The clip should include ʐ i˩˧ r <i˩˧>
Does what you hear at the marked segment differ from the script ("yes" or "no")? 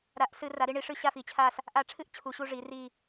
yes